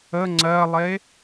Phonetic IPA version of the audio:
ə ŋ͡ǀ ɜ lˠ e

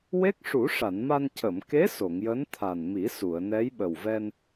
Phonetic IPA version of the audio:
w e˦˥ k̚ ʂ u˨˩˦ ʂ a˨˩˨ n m a˧ n c ə˨˩˨ m k e˧˥ s o˨˩˨ ŋ j əː˧˥ n t̪ʰ a˨˩ n m i˨˩˦ s u˨˩˨ ə̯ n ɛ˧˥ j ɓ ə˨˩ w v ɛ˧ n

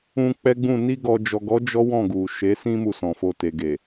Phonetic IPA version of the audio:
ũ˧ k͡p ɛ˦ ɡ͡b ũ˦˨ n i˧ ɡ ɔ˨ d͡ʒ ɔ˨ ɡ ɔ˨˦ d͡ʒ ɔ˦ w ɔ̃˦˨ ɡ u˨ ʃ e˨˦ s ĩ˦ m u˦˨ s ɔ̃˨ f o˧ t e˨ ɡ e˨

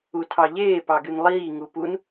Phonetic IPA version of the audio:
u tʰ ɑ ʎ eː p ɑ ɡ y n lˠ iː ŋ u p u n

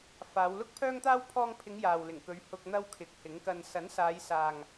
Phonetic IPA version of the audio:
f aː˨˧ w l ʊ˥ k̚ pʰ œː˥ ŋ t̪ aː˥ w pʰ ɔː˧ ŋ pʰ ɪ˨˧ ŋ j aː˨ w l ɪ˨˩ ŋ k ɵ˨˧ ɥ h ʊ˧ k̚ n̪ ɐ˥ w kʰ ɪ˨˥ k̚ h ɪ˨˥ ŋ k ɐ˧ n s ɐ˨˥ n s aː˨˧ j s aː˨ ŋ

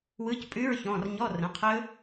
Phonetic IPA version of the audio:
w ɯ˧˥˧ c pʼ ʉ˧˥˧ ɹ ç ɔ̃˩˧˩ r ɲ ɔ˧˥˧ r ə̃˩˧˩ qʰ ɵ˦˥

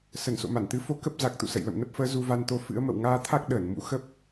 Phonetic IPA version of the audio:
s ə˧˩ n s o̰˧˨ m a˧˩ n t̪ ɨ˨˦ f o˧ k ə˦˥ p̚ z a˨˩ k̚ t̪ ṵ˧˨ s ə̰˧˨ j l ə̰˧˨ m n ə˦˥ p̚ f əː˨˦ z u˧ v a˧ n t̪ o˧ f ɨ̰˧˥ ə̯ m ə̰˧˨ w ŋ aː˧ t̪ʰ a˦˥ k̚ ɗ əː˧˩ n m ṵ˧˥ x ə˦˥ p̚

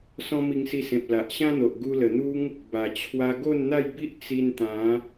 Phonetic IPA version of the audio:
s ɔ̃˦ m i˧ ŋ s i˧ s ẽ˨ p̚ l a˨ ʔ ɕ ã˦ n̪ o˨ ʔ ɡ u˧ l ə˨˩ n̪ u˦ ŋ | b a˨˩ t͡ɕʰ w a˧ ɡ o˥˧ n n̪ a˥˧ j b i˦ ʔ t͡s i˧ n t̪ ã˨˦

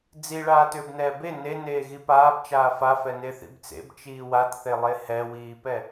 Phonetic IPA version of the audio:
d͡z i ɭ aː t ʏː b n ɛː b e n e n eː ɣ i p aː b t͡ʃ aː f a f ɛ n e θ ḭ b t͡s ḛ b t͡ʃ iː w a t θ e lˠ e h ɛ w iː p ɛ

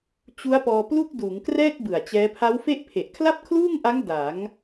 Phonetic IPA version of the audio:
t͡ɕ u˦˥ a̯ p ɔː˧ p l u˥˩ k̚ d uː˩˦ ŋ k r ɛː˥˩ k̚ b ɯ˨˩ a̯ t͡ɕ ɛː˦˥ pʰ a˦˥ w f e˥˩ ʔ pʰ e˨˩ ʔ kʰ l a˥˩ p̚ kʰ l uː˥˩ ŋ ʔ a˦˥ ŋ d a˩˦ ŋ

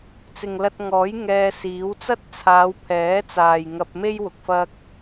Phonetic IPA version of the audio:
t͡s ɪ˨ ŋ l ɐ˧ t̚ ŋ ɔː˨˥ j ŋ ɛː˧ s iː˨˥ w t͡s ɐ˥ t̚ t͡sʰ aː˨˧ w pʰ ɛː˨˥ t͡s aː˨ j ŋ ɐ˧ p̚ m e˥ j w ʊ˨ k̚ f ɐ˧ k̚

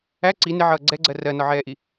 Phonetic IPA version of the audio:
æ ǀ i n ɪ ʕ ʌː ɡ͡ǀ ɛ ɡ͡ǀ ɜ r ɜ n ɒ ʕ ɛː ʔ i

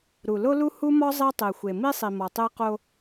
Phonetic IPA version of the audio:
ɾ u˨ l o˦ l u˦ h u˦ m ɒ˦ zˤ i˦ tˤ e˨ xʷ e˨ m i˦ sˤ i˨ m ɒ˨ tˤ e˦ q o˦

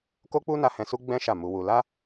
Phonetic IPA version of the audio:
k o˦ k͡p u˦ n a˧ h ɛ̃˧ s u˦ ɡ͡b ɛ̃˦ ʃ a˦˨ m u˧ w u˧ l a˦

